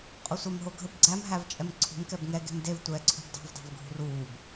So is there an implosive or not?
no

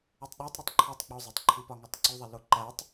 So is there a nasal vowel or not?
no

